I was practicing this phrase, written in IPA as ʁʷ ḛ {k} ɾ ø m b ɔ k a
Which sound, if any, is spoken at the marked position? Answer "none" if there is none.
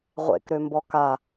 k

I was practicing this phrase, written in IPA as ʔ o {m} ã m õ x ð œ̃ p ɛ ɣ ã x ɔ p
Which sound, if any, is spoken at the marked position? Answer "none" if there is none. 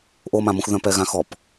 m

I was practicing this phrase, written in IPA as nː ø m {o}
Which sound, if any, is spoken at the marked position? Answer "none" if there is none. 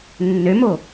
o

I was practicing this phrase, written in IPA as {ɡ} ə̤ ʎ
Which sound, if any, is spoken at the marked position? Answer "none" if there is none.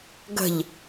ɡ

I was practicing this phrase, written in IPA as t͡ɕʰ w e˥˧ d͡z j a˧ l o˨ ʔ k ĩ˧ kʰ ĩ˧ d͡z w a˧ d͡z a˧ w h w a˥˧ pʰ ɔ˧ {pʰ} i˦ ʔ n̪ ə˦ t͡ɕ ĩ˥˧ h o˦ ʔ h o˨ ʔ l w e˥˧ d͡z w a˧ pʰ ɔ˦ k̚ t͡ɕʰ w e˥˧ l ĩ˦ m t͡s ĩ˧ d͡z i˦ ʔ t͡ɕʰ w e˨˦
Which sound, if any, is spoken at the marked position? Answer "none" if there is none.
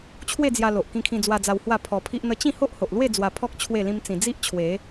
pʰ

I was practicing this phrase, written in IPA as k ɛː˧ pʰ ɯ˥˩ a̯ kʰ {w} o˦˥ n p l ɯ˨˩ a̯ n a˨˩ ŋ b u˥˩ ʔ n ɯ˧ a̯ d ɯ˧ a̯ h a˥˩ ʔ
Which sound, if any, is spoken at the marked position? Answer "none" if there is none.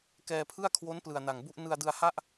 w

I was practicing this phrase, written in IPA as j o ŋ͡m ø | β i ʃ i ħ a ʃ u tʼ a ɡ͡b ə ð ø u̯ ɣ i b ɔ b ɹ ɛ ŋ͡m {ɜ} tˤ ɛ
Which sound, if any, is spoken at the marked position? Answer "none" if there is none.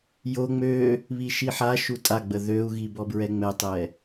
ɛ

